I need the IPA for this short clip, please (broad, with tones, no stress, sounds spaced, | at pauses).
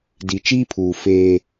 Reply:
d i˨ t͡ʃ iː˦ pʰ uː˨ f eː˦